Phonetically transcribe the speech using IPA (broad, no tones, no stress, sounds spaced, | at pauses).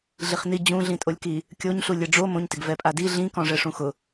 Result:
ɮ i χ n i d͡ʑ ũ ɮ ĩ tʼ o lʲ k i | kʲ o ɲ ɬ u lʲ ɛ ɖ͡ʐ o m õ ɲ t ɪ ɡ v ɛ pʼ a d i ɮ ĩ k ɔ̃ ʐ ɛ ʂ ũ x ʊ